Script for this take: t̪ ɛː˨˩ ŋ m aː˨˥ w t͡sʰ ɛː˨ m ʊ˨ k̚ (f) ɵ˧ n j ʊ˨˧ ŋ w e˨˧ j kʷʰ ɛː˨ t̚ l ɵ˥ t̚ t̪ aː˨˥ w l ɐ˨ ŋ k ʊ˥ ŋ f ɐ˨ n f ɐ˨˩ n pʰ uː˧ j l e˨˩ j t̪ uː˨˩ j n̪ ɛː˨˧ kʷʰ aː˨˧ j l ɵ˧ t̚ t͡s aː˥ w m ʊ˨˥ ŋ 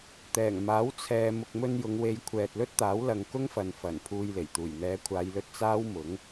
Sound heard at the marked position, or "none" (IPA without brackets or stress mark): m